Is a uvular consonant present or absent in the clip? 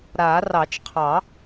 present